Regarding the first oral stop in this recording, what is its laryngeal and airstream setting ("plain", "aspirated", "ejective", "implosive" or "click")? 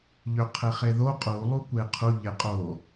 aspirated